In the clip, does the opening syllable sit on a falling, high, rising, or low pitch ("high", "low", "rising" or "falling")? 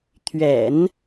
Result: low